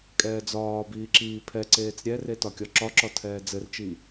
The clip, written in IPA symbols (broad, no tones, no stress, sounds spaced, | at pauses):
kʼ ɛː d͡z ɒː b iː ǁ iː pʰ ɛ ǀ eː t͡s ɾʲ ɛ r e t ɒ kʲ ɒ ǁ ɒ ǁ ɒ tʰ ɛː d͡z ɘ r t͡ʃ i